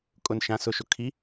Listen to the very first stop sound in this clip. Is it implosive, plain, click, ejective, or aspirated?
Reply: ejective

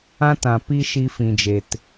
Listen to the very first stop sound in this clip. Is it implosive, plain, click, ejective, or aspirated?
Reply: plain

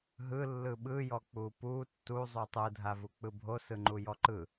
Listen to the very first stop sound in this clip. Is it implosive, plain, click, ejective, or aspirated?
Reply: implosive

